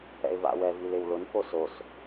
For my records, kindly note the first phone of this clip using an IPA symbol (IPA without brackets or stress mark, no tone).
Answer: ɛ̰